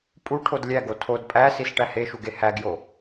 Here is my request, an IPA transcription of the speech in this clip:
pʼuʈʰod lʲæɡo tʰod pʼæsis ʈæheʃuɡe hæɡjo

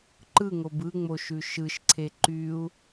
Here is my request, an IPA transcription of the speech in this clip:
ǃɯŋob ɯŋ͡moʃʉ ʃɯʃǀʰe ǃyu̯

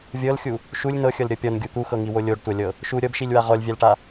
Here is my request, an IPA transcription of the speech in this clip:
vʲɤlxʲu | ʃulʲ nɤxʲɤlɾʲɤ pʲɔnɡʲu t̪uxɤŋiwo lʲoɖtʷalʲɤ | ʃu ɾʲɤbʃilʲwa ʁɔlʲvʲalʈa

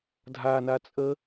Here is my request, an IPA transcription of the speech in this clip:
dʱana t͡sʼə

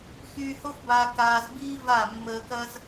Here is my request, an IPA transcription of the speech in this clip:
xyː˧ho˦fbaː˧k aː˧zbiː˦va˦˨ mːəː˧kɐ˦z

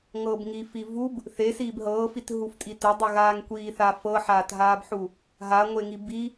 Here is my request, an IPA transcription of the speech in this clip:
ŋɤːbŋiːfivub | θe siːbɦɤːfit ɦuftʼite dˤuɣaːŋkʷiːθa fɤħaːtɦaːbħu | ɦaŋʷeŋib i

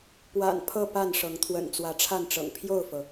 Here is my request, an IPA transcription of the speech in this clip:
pwa̰˨˩n pʰɤ˥˨pa˥˨nʂɤ˨˦ŋ t̪ʰwə̰˨˩nt͡swä˨˦ʈ͡ʂʰa˥˨nʈ͡ʂɤ̰˨˩ŋ pʰjo˥˨ʊ̯fɤ˩

